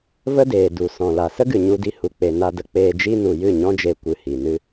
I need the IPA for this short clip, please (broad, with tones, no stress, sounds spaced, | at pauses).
v ə˦ d eː˨ d u˨ s ɔ̃˨ l a˨ s ə˦ ɡ ɨ˨ ɲ u˧ d i˧ h u˨ k͡p e˨ n a˧ d ə˧ k͡p eː˧ d͡ʒ i˦ n u˨ j ɨ˦˨ ɲ ɔ̃˦ d͡ʒ e˧ kʷ ɨ˧ h i˨ n ɨ˦